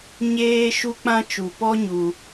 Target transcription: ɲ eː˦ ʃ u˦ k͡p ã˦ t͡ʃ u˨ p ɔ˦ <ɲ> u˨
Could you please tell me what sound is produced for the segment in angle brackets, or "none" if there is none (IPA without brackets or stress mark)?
ɲ